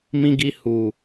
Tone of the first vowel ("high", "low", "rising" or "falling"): high